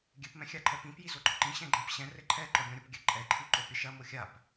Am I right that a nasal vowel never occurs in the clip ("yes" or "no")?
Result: no